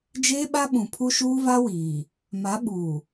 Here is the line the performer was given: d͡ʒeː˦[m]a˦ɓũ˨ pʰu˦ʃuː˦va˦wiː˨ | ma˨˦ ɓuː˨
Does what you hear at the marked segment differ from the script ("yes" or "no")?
yes